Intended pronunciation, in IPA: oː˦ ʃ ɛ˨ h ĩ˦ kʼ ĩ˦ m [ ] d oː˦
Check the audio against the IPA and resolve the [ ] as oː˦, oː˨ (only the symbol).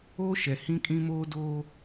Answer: oː˦